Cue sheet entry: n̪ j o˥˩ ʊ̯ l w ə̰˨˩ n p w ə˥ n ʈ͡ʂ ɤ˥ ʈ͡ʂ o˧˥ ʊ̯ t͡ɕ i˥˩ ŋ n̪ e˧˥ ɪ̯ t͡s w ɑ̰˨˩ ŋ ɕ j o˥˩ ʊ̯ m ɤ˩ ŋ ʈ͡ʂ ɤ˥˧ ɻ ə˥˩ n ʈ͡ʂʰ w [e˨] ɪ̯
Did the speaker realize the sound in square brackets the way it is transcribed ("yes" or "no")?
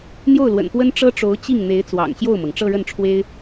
no